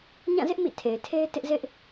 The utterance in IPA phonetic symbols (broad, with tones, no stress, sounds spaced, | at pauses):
ɲ ã˦˨ z ɪ˦ ʔ m ḭ˦˨ tʰ e˨ ɪ̯ tʰ e˦ ɪ̯ t ɪ˦ ʔ z ɪ˦ ʔ